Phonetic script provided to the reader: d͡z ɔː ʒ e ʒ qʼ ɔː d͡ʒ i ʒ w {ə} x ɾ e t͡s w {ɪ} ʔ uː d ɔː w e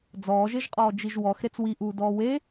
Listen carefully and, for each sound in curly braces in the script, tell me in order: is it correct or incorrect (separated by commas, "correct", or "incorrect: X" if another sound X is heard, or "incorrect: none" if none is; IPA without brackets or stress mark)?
incorrect: ɔ, incorrect: i